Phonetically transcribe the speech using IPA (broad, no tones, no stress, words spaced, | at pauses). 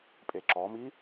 pʼeǁɔmi